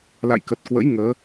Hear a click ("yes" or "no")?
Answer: no